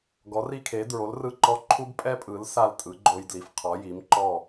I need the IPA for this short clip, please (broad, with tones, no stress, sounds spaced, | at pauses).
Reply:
ɡ ɔ˨˥ r i˦ kʰ e˨˥ d ɹ o˨˥ l r ɯ˦˨ ǃ ɔ˦ ǃʰ u˦ b pʼ ɛ˦ pʼ ɯ˨˥ l s a˦˨ l tʼ ɯ˨˥ ɡ͡ǃ o˦ j d l i˨˥ f qʰ ɔ˨˥ j i˨˥ m ǃ ɔ˦˨